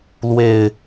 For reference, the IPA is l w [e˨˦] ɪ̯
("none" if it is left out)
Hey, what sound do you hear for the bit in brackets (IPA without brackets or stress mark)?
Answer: e˨˩